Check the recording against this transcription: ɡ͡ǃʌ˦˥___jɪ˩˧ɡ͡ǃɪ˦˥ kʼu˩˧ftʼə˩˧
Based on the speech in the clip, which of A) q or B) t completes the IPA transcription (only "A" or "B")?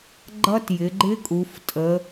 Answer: B